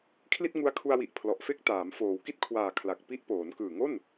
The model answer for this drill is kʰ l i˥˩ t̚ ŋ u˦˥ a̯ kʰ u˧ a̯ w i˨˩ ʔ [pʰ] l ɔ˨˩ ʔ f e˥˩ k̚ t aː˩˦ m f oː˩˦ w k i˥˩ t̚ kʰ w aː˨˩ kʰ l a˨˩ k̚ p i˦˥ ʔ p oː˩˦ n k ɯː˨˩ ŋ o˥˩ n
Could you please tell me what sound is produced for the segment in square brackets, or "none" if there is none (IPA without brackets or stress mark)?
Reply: pʰ